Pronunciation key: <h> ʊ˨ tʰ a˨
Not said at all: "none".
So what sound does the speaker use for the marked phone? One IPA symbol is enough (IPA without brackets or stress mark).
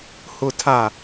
h